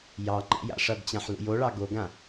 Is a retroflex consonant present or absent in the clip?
present